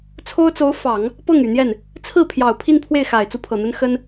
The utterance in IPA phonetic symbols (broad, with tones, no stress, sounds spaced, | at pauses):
t͡sʰ o˥ ʊ̯ t͡s o˧˥ ʊ̯ f ɑ˨˩˦ ŋ | p ɤ˥˩ ŋ y˨˩ n̪ j ɛ˥˩ n | t͡sʰ ɹ̩˥˩ pʰ j ɑ˨˩ ʊ̯ pʰ i˥˧ n pʰ w e˥˩ ɪ̯ x a˨˩ ɪ̯ t͡s u˥˩ pʰ ɤ˨˩ n̪ ə˥ n x ə˥ n